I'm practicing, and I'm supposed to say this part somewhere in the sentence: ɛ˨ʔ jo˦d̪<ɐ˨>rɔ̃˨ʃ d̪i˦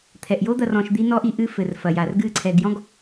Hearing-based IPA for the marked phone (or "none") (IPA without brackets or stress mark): ɐ˨